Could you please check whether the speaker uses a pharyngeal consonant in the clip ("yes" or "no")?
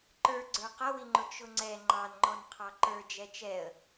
no